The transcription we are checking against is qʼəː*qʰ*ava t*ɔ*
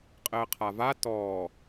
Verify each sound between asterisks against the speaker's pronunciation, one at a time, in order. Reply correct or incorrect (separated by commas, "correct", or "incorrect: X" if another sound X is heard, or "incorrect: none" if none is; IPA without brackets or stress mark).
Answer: correct, incorrect: ɔː